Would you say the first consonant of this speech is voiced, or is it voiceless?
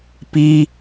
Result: voiceless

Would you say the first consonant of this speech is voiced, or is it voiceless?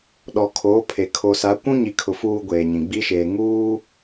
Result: voiced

